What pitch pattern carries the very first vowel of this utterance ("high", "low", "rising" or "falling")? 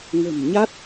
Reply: low